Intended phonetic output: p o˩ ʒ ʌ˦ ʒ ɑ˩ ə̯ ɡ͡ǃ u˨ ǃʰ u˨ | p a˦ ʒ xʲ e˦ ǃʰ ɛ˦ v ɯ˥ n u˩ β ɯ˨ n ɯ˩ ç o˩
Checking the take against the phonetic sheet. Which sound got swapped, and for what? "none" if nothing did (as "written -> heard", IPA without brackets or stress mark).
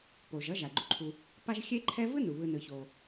ɑ˩ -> a˩